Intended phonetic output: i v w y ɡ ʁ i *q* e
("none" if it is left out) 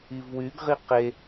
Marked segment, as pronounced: q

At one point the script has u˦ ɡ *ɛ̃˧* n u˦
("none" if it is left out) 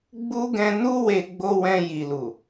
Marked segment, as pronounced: ɛ̃˧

